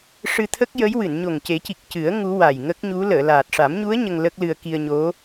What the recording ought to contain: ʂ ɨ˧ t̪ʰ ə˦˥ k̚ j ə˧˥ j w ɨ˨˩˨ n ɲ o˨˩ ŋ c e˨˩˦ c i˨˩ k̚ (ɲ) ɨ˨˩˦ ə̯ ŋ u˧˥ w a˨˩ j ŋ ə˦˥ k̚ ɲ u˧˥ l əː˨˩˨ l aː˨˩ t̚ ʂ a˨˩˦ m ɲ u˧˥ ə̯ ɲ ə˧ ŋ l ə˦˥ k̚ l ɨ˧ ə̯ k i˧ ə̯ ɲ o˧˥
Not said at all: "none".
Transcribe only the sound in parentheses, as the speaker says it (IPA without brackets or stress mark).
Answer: c